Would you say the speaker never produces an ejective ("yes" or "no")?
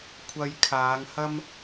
yes